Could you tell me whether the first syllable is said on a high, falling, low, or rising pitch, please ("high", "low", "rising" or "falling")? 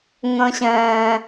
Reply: high